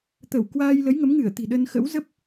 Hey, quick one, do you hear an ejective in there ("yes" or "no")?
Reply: no